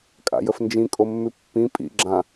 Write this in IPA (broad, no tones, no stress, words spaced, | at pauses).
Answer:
kʼa̰jəfnd͡ʒĩ kʼomːʉpːĩ pʼḭ ɡ͡ǁã